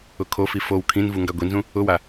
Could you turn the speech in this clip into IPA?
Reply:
ʊkʰofi fow kʰĩnvu ŋɡaɡʷinzũ | ʊwa

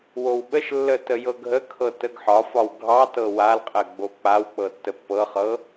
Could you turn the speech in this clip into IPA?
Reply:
wowɓəʃlːə təjɤɡʱəkʰɤ təɡħɒfɒw ɡʱɑtɤ walqʼɜ ɡ͡bok͡pawk͡pɤ tːəpːɤχɤ

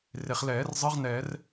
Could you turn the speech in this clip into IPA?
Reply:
re˩χlɛː˨˩˦rzˤɯ˧˥ʁ nɛ˨˩˦r

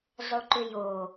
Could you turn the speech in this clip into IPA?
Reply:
zˤoǃʏjo

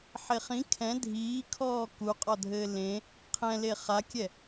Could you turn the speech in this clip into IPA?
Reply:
ħeχĩ kʰɛ̃ dʱiːkʰɔː kuqʼɔdʱɘː lẽ | qʰɛ̃le χakʲɛ

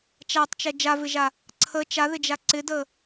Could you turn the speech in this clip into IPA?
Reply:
t͡ʃatˤt͡ʃɛ d͡ʒavɪʒa | ǀʰə t͡ʃaðɪd͡ʒa ǀɪdə

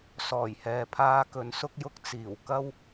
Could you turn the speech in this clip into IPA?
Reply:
sɔː˨˩jhɛː˨pʰaː˥ kɵ˨˧nsʊ˥k̚jʊ˥k̚ t͡siː˨˩w kɐ˥w

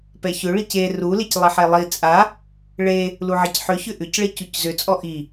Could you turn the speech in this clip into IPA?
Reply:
pɛçʏ ɭice ru leclˠiħelˠi t͡sʼa | ɭe | luʕɛcħʏ çʏʔʏc ɭecuczʏ t͡sʼɔʔi

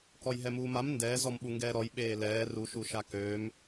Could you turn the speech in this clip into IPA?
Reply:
kɔjɦɛmuːmam ndɛː zɔmɓuŋɡɛːɾɔj ɓeːlɛː ru ʃuʃakøːm

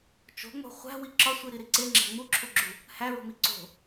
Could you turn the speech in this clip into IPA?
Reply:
t͡ʃo̤ŋ͡mo̤ χʷæ̤wi ǁɒsʷiɾiɾi ǀeŋ͡ǁæ̤ ŋ͡muǁʰuɡ͡ǁu | hæɹo̤mi ǀo̤

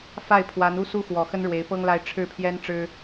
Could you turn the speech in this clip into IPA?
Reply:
fa˥˩ɪ̯pʰwa˧˥nu˥˧ su˥˩xwɔ˨˩ xə˥nɻwe˧˥ɪ̯pɤ˥ŋla˥˧ɪ̯ ʈ͡ʂʰɻ̩˥˩pʰjɛ˥nʈ͡ʂɻ̩˥

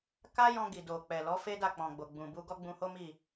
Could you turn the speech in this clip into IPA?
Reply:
ka˦jɔ̃˧ɡi˨do˨ k͡pɛ˨lɔ˨˦fe˦ da˦˨k͡pɔ̃˨ ɡ͡bo˨ɡ͡bũ˨bu˧ ɡɔ˦ɡ͡bũ˧ho˦mi˦˨

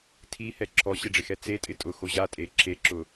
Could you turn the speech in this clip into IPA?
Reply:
tʰihɛ ǁʰɔɕeɖ͡ʐɪxɛ t͡setʼɪ tʼʊxo ʑatʼe ǁeǁʊ

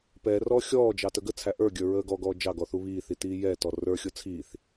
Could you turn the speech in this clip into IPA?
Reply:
pɛrɔː xʲɔːd͡ʒɑ təɡət͡sʰæ ʔə˞ɡʲə˞ ɹəːɡɔɡɔː d͡ʒɑɡɔ θuβiːθi tiːjɛtɔ rə˞xʲʊ t͡sʰiːθ

